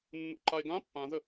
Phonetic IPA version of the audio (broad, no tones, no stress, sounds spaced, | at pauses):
nː ṵ ǃ a e̯ ɡ ã pː ã z ə